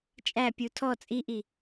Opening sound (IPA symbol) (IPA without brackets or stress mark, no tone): t͡ʃʼ